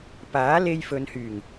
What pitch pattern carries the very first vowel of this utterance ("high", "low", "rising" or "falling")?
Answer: rising